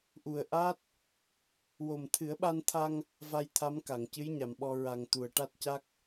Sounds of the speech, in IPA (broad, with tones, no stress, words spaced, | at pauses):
ʔu˨˩ə̯ʔa˦˥t̚ | wo˨˩mt̪ʰɨ˨˩˦ə̯ɓa˧nt̪ʰa˧ŋ | va˧jt̪ʰa˧˥m ka˨˩˨ŋcɨ˧˥jɲa˨˩mɓɔ˧ ɹa˨˩ŋ t̪u˨˩ə̯ʈa˦˥t̚ca˦˥k̚